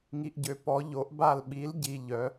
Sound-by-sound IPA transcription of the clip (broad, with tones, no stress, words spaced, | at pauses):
ŋi˨ʔɟø˨ pɔ˨˦ ʎo˨˦ʔba˦˨l ɓi˨˦lɟi˨ ʎœ˨˦